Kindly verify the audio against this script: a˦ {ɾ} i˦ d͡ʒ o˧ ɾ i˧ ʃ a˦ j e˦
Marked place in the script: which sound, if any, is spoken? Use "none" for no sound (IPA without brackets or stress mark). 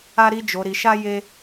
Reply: ɾ